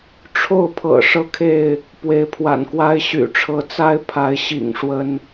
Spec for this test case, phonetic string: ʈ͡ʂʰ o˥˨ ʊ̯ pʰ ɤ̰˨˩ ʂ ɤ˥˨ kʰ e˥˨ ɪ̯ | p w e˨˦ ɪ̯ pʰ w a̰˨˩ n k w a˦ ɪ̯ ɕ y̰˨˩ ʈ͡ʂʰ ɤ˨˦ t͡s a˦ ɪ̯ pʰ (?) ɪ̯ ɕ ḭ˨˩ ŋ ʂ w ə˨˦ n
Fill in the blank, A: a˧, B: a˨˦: B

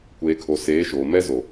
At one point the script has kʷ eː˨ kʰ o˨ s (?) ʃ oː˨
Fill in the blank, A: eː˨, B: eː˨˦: B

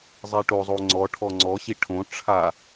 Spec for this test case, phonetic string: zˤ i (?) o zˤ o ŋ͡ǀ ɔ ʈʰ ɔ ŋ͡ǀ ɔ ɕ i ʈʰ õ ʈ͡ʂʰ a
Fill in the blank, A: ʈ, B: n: A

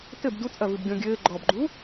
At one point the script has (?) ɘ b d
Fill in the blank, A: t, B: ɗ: A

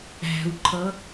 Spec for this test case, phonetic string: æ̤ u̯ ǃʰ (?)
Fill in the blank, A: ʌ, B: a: A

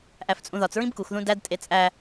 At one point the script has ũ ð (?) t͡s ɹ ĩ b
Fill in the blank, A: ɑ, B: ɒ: B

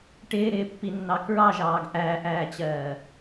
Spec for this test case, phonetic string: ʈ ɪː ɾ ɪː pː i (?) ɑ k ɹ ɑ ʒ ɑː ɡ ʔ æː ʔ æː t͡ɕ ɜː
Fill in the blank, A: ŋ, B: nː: B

